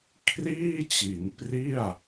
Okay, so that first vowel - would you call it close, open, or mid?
close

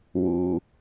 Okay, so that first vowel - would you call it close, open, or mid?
close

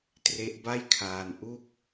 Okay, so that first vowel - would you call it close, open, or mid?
mid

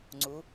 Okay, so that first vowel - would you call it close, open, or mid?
close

